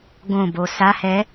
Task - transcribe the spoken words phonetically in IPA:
ɡ õ b o s a h ɛ

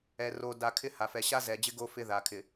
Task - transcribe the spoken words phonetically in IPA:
ɛ˨ r o˨ d a˨ kʰ ɪ˦ h a˨ f ɛ˨ ɕ a˦ z ɛ˨ d͡ʑ ɪ˦ ɡ o˦ f ɪ˦ ð a˨ kʰ ɪ˨

